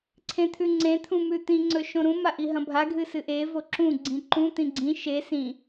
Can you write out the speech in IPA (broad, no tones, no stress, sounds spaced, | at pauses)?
ǀʰ ẽ t̪ʰ ʉ ŋ͡ǀ ẽ t̪ʰ ũ m ʉ t̪ ĩ ŋ͡ǀ ɵ ʃ õ ɾ ũ m a ʔ i ɦ ɐ̃ bʱ a ɡʱ ɨ s ɨ ʔ e v o ǁ ũ ɡ͡ǀ ĩ ǃ ũ t̪ ĩ ɡ͡ǀ ĩ ʃ e s ĩ